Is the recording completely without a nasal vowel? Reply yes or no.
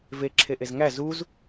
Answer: yes